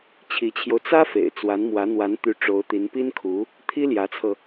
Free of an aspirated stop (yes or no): no